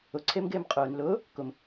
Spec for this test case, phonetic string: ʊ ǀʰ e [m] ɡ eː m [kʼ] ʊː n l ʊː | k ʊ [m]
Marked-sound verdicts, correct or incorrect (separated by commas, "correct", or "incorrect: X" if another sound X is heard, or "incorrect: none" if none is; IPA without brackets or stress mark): correct, incorrect: qʼ, correct